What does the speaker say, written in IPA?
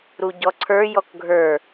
ɾ u ɟ ɔ ǀʰ ə˞ j ɔ k ɡʱ ə˞

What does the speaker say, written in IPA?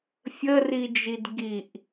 fʲ ə r i d͡ʒ i d ɡ i ʔ

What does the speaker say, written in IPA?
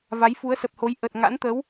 v a˨˦ j f u˨˦ ə̯ s ə˨˩ p̚ h o˨˦ j ʔ ə˨˩ t̚ ŋ a̰˧˥ n t̪ ə˨˦ w

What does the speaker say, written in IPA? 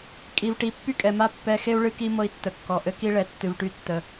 kʼ i˨ v ʈ i˨ pː y˦ kʼ ɛ˨ m a˦ pː ɛ˦ x e˦ u̯ ɭ ɨ˦ k i˦ m ɤ˦ i̯ tː ə˨ kː ɔ˨ ʔ ɘ˦ k i˦ ɭ ɛ˨˦ tː ɨ˨ v ʈ y˦ tː ə˨

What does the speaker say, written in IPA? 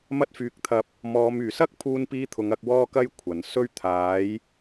m ɐ˧ t̚ f yː˨ k̚ t̪ʰ ɐ˨˥ p̚ | m ɔː˨˧ m yː˨˩ s ɐ˥ k̚ pʰ uː˧ n p iː˧ t̪ʰ ʊ˨˧ ŋ ɐ˨˥ k̚ w ɔː˥ k ɐ˥ j kʷʰ ɐ˨˩ n s ɵ˥ ɥ t̪ʰ aː˨˥ j

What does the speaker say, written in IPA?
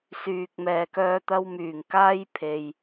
s yː˨ k̚ m ɛː˨ k œː˧ t̪ ɐ˧ w m yː˨˩ ŋ k aː˥ j pʰ e˨ j

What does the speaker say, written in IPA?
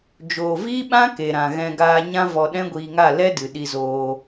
d͡ʒ oː˨ v iː˦ ɓ ã˦ k e˨ ɾ ã˨ ɣ ɛ̃˧ ɡ aː˧ ɲ ã˦ v ɔ˧ ɗ ɛ̃˦ ɡʷ iː˧ ŋ a˦˨ l ɛ˦ d ɨ˨ ɗ i˧ z oː˧

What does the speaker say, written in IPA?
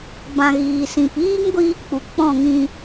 b ã˧ ɣ iː˨ s ĩ˨ p iː˦ ŋ ɡʷ iː˧ k͡p u˨ k͡p ɔ̃˦˨ ŋ ĩ˧

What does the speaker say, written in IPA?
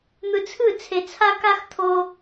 n̪ ɯ˧ t͡sʰ ɯ˦˨ t͡sʰ e˧ t͡sʰ a˦ k a˦ x t̪ʰ o˦

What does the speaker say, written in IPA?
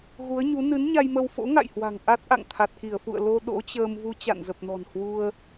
ɣ u˨˦ ə̯ ɲ u˨˦ n ɨ˨˦ n ɲ a˧ j m ə˧ w f o̰˧˥ ŋ a̰˧˨ j h w a̤˨˩ ŋ ʔ a˦˥ t̚ ʔ a̰˧˨ ŋ t̪ʰ a˨˩ t̚ k i˧˩ ə̯ f ṵ˧˨ ə̯ l o˧ ɗ o̰˧˥ t͡ɕ əː˧ m v u˧ t͡ɕ a̰˧˨ n z ə˨˩ p̚ n ɔ̤˨˩ n h w u˧ ə̯

